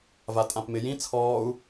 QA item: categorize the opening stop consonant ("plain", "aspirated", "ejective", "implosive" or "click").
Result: ejective